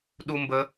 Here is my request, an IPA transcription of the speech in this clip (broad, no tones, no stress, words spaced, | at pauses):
ɗumbə